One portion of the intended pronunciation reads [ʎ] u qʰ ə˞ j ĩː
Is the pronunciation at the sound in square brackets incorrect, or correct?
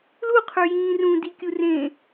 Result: incorrect